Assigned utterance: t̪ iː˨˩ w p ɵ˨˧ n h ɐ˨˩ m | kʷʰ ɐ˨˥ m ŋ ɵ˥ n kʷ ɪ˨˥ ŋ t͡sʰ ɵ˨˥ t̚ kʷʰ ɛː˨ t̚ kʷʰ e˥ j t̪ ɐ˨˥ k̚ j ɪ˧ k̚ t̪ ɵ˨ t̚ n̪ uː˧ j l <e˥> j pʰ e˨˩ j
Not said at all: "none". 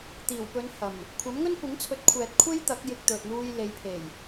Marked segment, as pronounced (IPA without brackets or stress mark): e˨˧